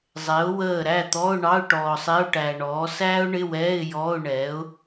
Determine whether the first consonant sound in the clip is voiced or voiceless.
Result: voiced